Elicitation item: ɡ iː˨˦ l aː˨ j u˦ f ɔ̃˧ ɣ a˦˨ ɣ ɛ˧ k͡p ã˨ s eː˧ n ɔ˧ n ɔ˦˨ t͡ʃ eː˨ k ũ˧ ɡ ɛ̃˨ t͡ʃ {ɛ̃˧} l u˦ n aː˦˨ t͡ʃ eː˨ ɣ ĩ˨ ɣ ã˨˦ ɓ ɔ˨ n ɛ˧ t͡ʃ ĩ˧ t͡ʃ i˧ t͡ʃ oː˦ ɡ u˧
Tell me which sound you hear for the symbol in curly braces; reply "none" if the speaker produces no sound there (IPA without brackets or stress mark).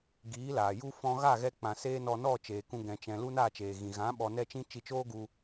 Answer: ɛ̃˨